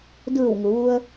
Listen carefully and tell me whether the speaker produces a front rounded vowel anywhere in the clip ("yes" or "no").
no